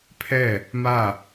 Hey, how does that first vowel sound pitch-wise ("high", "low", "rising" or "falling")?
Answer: falling